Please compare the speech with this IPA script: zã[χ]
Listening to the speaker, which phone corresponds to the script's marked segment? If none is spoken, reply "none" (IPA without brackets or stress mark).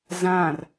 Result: r